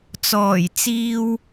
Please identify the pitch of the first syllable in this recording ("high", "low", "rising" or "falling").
low